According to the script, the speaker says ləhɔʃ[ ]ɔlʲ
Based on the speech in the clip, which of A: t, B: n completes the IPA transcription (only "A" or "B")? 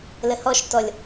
A